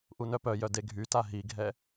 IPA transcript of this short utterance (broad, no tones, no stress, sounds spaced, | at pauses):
ʔ u n œ p œ j œ d e ɡʱ y t a ɦ i ɡʱ ɛ